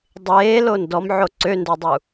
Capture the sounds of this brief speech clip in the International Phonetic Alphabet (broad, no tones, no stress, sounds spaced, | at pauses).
dˤ eː l o n d ɔ m ʕ o ǀ ø n d o dˤ u